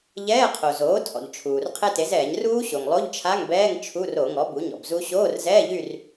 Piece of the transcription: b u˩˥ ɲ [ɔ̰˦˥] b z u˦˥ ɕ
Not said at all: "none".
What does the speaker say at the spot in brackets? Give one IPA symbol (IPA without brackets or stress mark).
ɔ̰˩